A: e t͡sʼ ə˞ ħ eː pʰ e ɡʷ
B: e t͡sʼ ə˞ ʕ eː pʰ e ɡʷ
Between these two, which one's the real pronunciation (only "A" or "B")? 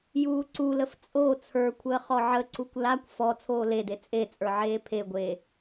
B